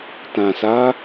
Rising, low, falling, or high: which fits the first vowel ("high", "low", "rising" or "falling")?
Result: low